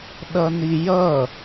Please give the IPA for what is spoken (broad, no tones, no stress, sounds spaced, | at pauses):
ɗ ʌ n i j ʌ